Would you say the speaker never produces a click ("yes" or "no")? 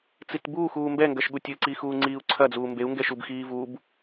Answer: no